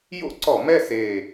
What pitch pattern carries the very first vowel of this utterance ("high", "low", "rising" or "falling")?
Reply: high